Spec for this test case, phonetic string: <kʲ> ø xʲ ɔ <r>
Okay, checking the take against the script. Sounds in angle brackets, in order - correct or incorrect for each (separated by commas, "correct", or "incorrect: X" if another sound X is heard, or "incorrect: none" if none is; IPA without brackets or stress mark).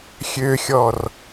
incorrect: xʲ, correct